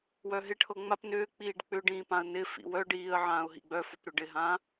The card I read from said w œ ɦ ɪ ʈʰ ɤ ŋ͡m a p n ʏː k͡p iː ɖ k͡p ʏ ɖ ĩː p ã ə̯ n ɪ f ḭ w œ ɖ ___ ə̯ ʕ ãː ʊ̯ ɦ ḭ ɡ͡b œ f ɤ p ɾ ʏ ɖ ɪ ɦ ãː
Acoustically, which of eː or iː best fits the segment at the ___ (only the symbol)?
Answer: iː